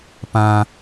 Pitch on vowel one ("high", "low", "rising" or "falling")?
high